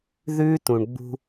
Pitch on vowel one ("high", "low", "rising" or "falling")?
high